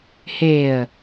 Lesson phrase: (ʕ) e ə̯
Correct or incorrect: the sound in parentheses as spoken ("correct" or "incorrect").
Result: incorrect